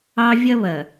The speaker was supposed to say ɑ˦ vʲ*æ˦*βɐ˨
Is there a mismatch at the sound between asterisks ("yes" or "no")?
yes